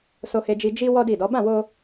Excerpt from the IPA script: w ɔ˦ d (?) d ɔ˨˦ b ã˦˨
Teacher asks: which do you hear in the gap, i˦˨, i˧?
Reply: i˦˨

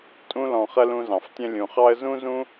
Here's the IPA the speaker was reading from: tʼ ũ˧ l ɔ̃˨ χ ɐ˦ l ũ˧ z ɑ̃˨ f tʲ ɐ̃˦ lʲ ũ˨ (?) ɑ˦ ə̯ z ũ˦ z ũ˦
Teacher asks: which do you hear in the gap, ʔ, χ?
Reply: χ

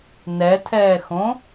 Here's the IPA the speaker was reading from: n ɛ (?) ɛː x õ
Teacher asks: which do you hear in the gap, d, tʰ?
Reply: tʰ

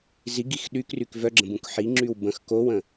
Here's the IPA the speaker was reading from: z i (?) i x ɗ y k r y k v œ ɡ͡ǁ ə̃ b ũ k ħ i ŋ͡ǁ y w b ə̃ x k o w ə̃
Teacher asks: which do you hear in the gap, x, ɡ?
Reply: ɡ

